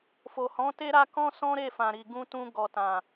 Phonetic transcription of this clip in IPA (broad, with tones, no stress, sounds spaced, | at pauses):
f o˨ h ɔ̃˨˦ t e˦ ɾ a˧ k ɔ̃˦ s ɔ̃˦ ɾ e˦˨ f ã˨ ɾ i˨ ɡ ũ˧ t ũ˧ ɡ ɔ˨ t ã˨